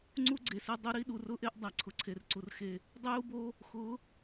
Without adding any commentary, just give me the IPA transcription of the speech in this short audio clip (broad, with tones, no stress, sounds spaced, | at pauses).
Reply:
ŋ͡ǀ u˦ ɡ͡ǀ e˨ s e˦ dˤ u˦ ɾ i˦ ɗ u˨ r ʊ˦ ʔ e˦ ʔ dˤ a˨ ǀʰ ʊ˨ ǀʰ e˨ r ǀ u˨ r x e˦ | dˤ ʊ˦ j u˦ b o˦ | x ʊ˨˦